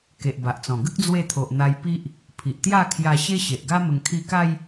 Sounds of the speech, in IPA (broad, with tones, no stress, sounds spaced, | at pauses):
k e˨ ʔ b a˨ ʔ t͡s ɔ̃˨˩ ɡ ə˦ k̚ d͡z w e˧ t̪ʰ o˨ ʔ n̪ a˧ j p i˦ ʔ | pʰ i˨ ʔ t̪ j a˥˧ kʰ j a˧ ɕ e˦ ɕ e˨ ʔ ɡ a˦ m ə˧ ŋ kʰ i˧ k a˦ j